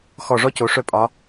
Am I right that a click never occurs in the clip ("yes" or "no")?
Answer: yes